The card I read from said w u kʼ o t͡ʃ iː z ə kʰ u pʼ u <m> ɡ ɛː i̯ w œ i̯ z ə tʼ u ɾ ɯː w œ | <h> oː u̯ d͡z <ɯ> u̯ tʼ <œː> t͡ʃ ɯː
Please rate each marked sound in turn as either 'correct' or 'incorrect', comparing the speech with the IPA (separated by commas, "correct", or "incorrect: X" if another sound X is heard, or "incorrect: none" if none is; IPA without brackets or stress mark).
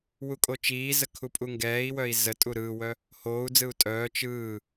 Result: incorrect: ŋ, correct, correct, correct